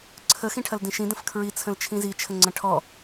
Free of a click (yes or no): no